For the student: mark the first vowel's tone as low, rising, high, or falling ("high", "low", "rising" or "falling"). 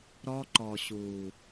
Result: high